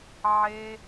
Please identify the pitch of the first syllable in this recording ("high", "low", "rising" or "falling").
high